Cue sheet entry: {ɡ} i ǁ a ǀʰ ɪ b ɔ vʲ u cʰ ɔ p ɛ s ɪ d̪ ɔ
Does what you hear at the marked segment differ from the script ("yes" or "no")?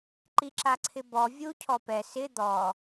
yes